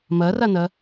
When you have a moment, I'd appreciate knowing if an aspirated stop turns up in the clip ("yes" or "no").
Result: no